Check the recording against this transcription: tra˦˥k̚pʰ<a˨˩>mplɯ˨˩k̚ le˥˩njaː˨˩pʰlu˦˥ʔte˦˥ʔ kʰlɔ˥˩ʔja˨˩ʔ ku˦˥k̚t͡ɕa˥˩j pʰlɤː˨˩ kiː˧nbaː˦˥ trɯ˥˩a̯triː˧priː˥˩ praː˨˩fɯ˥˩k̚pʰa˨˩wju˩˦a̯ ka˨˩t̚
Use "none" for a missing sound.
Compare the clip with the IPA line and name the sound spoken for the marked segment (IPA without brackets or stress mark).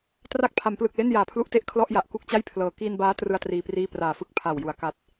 a˩˦